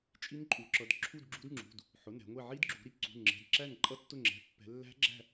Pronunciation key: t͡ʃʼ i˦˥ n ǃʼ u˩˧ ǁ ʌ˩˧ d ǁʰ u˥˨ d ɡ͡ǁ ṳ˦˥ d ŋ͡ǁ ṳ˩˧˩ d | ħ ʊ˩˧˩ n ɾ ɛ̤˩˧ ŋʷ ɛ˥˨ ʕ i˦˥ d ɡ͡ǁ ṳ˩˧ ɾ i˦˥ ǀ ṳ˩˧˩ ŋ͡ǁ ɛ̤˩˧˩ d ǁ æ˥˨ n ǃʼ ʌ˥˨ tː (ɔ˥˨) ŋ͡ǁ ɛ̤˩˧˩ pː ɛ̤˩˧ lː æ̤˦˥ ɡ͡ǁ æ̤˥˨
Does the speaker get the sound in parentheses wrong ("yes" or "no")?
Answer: yes